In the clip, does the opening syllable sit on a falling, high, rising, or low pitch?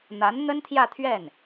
rising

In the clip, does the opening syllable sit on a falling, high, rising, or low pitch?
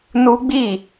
high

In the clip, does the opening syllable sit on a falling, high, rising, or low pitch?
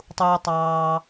high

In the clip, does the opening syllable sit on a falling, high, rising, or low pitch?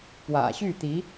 low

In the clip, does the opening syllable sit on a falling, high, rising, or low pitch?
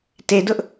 low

